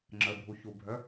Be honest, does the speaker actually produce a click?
yes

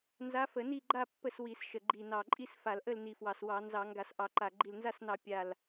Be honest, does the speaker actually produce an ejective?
yes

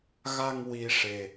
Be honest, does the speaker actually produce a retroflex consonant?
yes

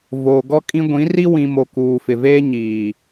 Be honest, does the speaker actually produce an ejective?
yes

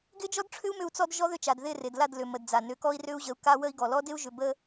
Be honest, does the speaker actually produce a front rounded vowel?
yes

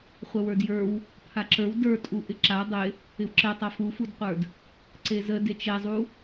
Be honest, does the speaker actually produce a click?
yes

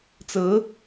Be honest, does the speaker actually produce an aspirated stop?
no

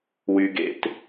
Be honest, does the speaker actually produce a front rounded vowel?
yes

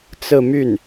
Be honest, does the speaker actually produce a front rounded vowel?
yes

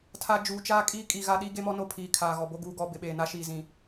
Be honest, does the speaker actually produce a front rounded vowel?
no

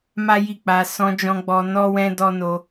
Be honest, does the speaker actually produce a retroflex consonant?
no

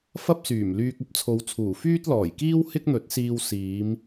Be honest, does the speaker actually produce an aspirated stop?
yes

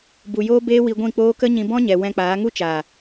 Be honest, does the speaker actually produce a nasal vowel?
yes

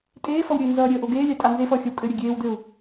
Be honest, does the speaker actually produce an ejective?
yes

